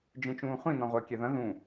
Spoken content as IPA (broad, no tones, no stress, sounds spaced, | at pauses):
d͡ʒ ẽ t͡ʃ ũː χʷ ĩ n ɔ̃ ʁʷ əː kʲ ɛ ð ɐ̃ ð ũ